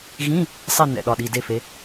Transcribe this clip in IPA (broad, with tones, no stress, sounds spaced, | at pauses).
ɣ ĩ˧˥˧ | sˤ e˦˨ n ɛ̰˩˧˩ ɗ ɒ˩˧˩ ɗ i˩˧˩ d e˦˨ f e˨˦